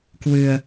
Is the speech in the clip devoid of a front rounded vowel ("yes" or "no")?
yes